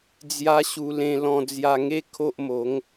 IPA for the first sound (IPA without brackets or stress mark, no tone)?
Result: d͡z